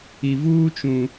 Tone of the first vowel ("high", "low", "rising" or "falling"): low